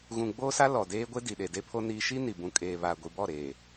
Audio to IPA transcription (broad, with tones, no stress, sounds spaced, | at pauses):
ɣ ũ˨ ɡ͡b oː˦ s a˦ l ɔ˨ d eː˦ ɡʷ e˦ d i˨ ɗ e˨ d e˦ pʰ o˦ n iː˦ ʃ i˦ n i˨ b ũ˨ kʼ eː˨ β a˨ ɡʷ i˨ b ɔ˦˨ ɾ eː˨